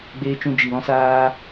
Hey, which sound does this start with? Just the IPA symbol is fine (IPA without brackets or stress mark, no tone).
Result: ɡ͡b